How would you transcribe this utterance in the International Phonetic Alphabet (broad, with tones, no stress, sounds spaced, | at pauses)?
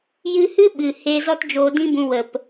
j ɨ˧ h ɨ˦ ɓ ɨ˨ h e˧ z ɔ˦ t d͡ʒ oː˧ d ĩ˦ b ũ˧ w ə˨ p